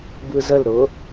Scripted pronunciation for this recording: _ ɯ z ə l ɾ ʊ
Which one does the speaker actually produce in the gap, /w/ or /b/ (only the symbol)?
b